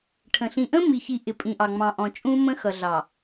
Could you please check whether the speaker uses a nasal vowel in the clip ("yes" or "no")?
yes